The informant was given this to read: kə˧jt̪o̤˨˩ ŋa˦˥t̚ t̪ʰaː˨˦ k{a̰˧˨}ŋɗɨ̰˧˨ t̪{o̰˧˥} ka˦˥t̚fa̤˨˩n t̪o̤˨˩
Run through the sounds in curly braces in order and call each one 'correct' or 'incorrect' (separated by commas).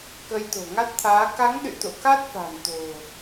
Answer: incorrect, incorrect